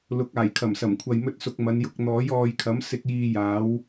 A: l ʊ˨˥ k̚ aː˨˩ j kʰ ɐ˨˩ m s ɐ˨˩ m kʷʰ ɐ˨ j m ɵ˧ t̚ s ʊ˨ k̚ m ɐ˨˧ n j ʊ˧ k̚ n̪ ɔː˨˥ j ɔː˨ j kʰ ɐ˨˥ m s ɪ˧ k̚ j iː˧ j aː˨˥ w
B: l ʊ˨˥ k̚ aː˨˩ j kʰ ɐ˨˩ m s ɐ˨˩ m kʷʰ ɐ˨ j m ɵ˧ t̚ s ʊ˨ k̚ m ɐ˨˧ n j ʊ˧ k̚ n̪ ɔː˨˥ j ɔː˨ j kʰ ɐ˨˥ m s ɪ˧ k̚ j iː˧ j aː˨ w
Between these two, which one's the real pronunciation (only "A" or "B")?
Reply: A